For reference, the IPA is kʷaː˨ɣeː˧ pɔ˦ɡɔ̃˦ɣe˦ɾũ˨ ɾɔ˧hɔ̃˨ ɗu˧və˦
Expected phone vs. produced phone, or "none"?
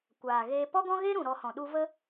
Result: none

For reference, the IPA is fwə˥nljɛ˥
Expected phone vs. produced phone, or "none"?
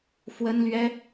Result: j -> ɥ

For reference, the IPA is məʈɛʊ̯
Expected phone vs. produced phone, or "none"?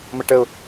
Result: ɛ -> ə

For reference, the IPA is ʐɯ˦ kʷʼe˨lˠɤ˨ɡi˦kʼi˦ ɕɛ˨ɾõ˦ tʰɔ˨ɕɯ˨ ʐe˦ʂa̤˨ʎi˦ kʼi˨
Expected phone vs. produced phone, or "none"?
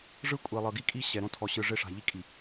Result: none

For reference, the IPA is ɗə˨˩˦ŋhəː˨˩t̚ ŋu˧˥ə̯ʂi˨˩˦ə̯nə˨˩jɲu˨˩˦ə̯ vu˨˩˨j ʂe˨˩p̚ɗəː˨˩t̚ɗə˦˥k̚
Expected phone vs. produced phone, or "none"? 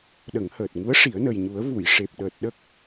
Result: none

